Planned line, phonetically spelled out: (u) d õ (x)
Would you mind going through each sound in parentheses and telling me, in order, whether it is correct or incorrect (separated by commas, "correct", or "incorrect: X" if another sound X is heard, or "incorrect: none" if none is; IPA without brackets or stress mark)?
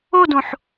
incorrect: o, incorrect: ħ